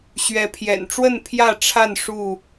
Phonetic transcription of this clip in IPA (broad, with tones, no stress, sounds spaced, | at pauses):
ɕ ɥ ɛ˨˦ pʰ j ɛ̰˨˩ n ʈ͡ʂ w ə˥˨ n pʰ j ä˥˨ ʈ͡ʂʰ a˥˨ n ʂ u˥˨